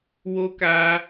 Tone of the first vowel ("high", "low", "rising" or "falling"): high